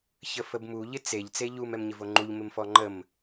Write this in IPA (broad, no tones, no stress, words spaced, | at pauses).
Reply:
çəfəbmu ʎɪt͡seʎ t͡seʎum ɛmɲɪvoŋ͡ǃuʎ mɪmfɔŋ͡ǃəm